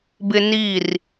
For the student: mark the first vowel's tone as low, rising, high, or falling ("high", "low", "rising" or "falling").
high